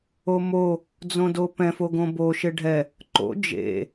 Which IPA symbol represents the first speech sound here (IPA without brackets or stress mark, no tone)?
o